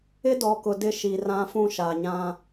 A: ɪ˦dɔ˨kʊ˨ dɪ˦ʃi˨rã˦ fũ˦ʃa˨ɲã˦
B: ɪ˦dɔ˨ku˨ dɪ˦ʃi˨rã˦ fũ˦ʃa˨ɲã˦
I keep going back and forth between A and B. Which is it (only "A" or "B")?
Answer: A